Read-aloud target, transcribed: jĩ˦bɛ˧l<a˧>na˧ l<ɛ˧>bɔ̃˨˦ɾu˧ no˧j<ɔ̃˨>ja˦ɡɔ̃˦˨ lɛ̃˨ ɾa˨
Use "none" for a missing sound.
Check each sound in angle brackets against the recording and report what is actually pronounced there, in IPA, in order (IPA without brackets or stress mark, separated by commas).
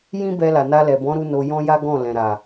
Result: a˨, ɛ˨, ɔ̃˦